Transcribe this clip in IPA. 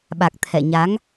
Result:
ɓ a˨˩ k̚ t̪ʰ ɛ̰˧˨ ɲ a˨˦ ŋ

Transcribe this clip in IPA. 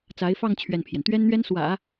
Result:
t͡s a˧˥ ɪ̯ f ɑ˥˧ ŋ t͡ɕʰ ɥ ɛ˥˩ n pʰ j ɛ˩ n t̪ ɥ ɛ˥ n n̪ ɥ ɛ˥ n s w ä̰˨˩˦

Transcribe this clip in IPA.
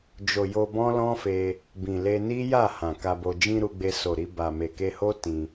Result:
d͡ʒ o˨ j o˧ b ɔ̃˦ l ɔ̃˦ f e˧ | b ĩ˨ l e˧ n i˦ j a˦˨ h ã˨ k a˧ b o˧ d͡ʒ ĩ˧ ɾ u˧ ɡ͡b e˧ s o˨ ɾ i˧ b a˨ m e˨ k e˧ h o˦ t ĩ˧

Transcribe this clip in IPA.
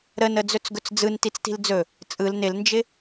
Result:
ɾ ə n ə d͡z ɵ t͡s ɡ ɵ t͡s d͡z ɯ n t i t͡s t i̤ l d͡z ɵ | t͡sʼ ɯ l n ɪ l n d͡ʒ ɪ

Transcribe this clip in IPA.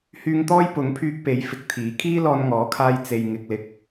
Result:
h yː˧ ŋ t̪ ɔː˥ j p ʊ˨˥ ŋ pʰ yː˧ k̚ p e˨˥ j f ɪ˨˥ k̚ t̪ʰ iː˨˥ kʰ iː˥ l ɔː˧ n ŋ ɔː˨˥ kʰ aː˧ j t͡s e˨ j ŋ ɪ˨ k̚ l ɪ˨ k̚

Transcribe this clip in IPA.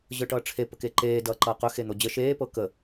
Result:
ʑ ɤ ʈ ʌː ʈ͡ʂʰ e p ə k e ǃ eː d ʌː ǃ ʌː q ɵ x e n̪ o d͡ʑ ə ʃ eː p ɤ k ə

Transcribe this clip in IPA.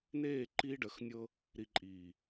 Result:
n eː˦˨ ǃ iː˦ ɖ ə˨˦ x nʲ ɤ˦ | ɾ i˨ ǃʼ iː˨

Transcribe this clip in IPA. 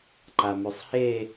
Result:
ǃ a m ʉ sˤ h e

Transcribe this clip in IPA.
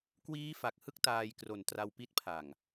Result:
k w iː˦˥ f a˨˩ k̚ h ɯ˥˩ k̚ t aː˧ j k r o˨˩ n t r a˧ w p i˦˥ t̚ pʰ a˨˩ ŋ

